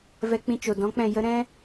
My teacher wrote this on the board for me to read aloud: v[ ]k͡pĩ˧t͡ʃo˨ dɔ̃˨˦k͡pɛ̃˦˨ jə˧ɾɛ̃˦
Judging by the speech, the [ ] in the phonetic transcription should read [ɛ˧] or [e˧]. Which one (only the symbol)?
ɛ˧